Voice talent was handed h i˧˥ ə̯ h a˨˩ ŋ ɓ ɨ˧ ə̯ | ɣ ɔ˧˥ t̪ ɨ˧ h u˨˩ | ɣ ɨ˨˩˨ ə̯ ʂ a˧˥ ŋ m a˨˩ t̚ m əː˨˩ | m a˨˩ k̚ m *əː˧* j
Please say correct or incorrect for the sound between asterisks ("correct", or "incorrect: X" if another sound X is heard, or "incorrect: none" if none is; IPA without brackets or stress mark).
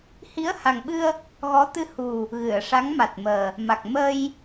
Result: correct